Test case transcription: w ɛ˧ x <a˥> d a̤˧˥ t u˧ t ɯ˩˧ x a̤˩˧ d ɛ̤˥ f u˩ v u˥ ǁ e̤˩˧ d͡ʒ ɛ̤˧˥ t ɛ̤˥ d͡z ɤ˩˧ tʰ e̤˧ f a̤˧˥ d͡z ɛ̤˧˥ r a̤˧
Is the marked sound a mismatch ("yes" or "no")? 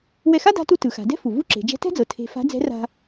no